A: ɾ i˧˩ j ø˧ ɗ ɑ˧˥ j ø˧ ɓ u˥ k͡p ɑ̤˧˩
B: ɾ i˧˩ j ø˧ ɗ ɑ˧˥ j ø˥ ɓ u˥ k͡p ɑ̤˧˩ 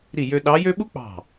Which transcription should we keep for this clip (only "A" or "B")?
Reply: B